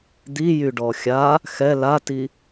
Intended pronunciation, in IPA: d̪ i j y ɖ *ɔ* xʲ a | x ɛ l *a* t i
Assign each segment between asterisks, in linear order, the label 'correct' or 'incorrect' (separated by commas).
correct, correct